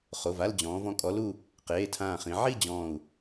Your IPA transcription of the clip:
χo˩˧˩va˥˧ld͡ʑɔ̃ː˩˧v ɔ̃˨˥kʼɔ˨˥lu˥˧ | qeː˩˧˩tʰãː˧˩χĩ˩˧ ʕi˥˧ d͡ʑɔ̃ː˧˩u̯

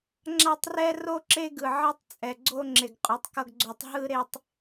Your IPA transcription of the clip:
ŋ͡ǁa˦tˤrɛ˦ro˦ ǁe˦ɡɯ˨ ʕʌ˦tˤt͡sʼɛ˨ɡ͡ǀo˦ ŋ͡ǁe˨ɡqʼu˨˦tˤkʌ˦ɡɡ͡ǀo˨˦tˤ ɦɯ˦ ɾe˨tˤ

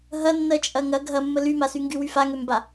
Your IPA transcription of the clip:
ɦɐ nːɜt͡ʃʼɐŋɐ ɡʱɐmːə lymasyŋɡy wyfaŋømba

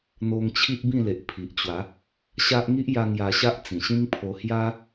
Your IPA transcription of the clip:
n̪o˧ŋt͡ɕʰi˦ʔbĩ˥˧le˨ʔ pʰi˨ʔt͡ɕwa˨˦ | ɕa˦ʔ ŋi˦ʔja˧ ŋja˧ɕa˦ʔ t͡sĩ˨˩ɕĩ˦ŋpʰo˧ hja˦

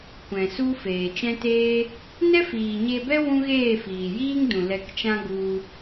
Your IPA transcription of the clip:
kʷɛ̃˨ su˦ feː˨t͡ʃɛ̃˦teː˦ | nɛ˦fiː˨ ɲe˧bɛ˦ wũ˦ɣeː˦˨fiː˨ jiː˦ŋdũ˨ lɛ˧kt͡ʃã˦ ɡu˧

